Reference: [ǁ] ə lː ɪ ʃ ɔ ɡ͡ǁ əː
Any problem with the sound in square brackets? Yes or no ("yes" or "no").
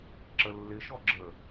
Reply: no